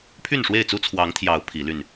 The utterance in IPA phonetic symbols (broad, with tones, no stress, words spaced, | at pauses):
pʰy˥˨nʂwe˥˨ɪ̯t͡su˦ t͡sʰwɑ˨˦ŋt̪ʰjɑ˨˦ʊ̯ pʰi˨˦ly˥˨n